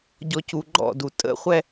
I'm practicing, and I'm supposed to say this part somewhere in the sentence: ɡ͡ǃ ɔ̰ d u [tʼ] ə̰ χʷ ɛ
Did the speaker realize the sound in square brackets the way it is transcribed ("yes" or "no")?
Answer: yes